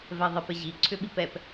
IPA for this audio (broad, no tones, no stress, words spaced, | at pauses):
vɛðˤipɪʑi ǀʰʏɓipɛp